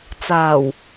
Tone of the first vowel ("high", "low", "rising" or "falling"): low